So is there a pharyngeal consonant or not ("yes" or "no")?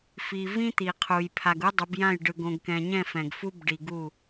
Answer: no